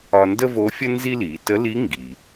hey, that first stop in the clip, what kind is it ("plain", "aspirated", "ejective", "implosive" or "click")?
plain